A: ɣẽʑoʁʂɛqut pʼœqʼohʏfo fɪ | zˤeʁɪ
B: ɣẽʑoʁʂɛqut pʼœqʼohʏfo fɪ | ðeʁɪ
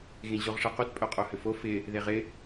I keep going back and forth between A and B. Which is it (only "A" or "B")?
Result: B